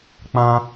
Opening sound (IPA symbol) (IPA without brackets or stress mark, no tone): k͡p